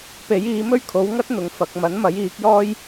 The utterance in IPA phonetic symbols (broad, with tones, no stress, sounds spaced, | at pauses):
p e˨˥ j iː˨˥ m ɵ˥ ɥ kʰ o˨˥ w ŋ ɐ˥ t̚ n̪ ʊ˨ ŋ f ɐ˨ k̚ m ɐ˨˥ n m ɐ˨˥ j iː˨˥ k̚ j ɔː˥ j